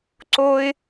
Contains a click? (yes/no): yes